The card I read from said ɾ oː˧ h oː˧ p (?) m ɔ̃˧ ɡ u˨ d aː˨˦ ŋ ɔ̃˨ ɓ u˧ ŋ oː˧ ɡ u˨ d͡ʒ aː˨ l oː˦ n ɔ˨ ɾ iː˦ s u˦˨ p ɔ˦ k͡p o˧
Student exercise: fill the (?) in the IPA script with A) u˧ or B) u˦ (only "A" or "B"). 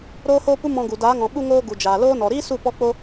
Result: B